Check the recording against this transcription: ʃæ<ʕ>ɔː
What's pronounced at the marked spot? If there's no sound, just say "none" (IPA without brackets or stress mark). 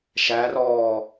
r